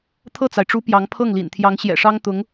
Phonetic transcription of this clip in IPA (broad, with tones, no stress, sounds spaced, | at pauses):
t̪ʰ ɤ˥˩ t͡s a˩ ɪ̯ ʈ͡ʂ u˧˥ p j ɑ˧˥ ŋ pʰ ɤ˥˩ ŋ l ḭ˨˩ n t̪ʰ j ɑ˧˥ ŋ ɕ j ɛ̰˨˩ ʂ ɑ˥ ŋ t̪ ʊ˧˥ ŋ